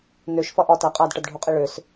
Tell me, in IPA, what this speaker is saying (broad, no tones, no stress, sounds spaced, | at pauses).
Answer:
n ø ʃ f ʌ ʔ ɒ t æ qʼ a d ʈ ʌ d ɖʱ u qʼ i ɭ ø s